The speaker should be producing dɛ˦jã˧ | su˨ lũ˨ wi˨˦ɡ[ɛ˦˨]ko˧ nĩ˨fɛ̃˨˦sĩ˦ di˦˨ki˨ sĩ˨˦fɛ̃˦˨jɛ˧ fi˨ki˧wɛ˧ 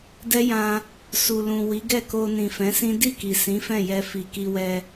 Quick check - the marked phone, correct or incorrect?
correct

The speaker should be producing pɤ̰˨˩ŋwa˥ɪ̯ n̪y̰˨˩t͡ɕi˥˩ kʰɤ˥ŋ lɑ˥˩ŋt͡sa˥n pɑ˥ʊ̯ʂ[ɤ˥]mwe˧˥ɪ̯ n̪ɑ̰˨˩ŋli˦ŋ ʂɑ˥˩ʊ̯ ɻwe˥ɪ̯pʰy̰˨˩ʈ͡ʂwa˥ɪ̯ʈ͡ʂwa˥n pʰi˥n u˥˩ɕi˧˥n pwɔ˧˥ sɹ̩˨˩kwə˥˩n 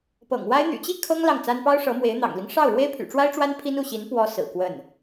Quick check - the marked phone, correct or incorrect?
incorrect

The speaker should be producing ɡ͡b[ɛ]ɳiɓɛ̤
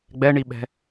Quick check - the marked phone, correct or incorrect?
correct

